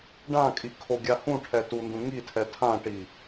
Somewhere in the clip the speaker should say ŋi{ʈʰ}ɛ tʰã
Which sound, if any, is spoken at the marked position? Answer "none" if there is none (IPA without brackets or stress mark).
tʰ